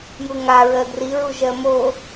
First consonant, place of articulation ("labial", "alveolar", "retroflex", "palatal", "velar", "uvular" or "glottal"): palatal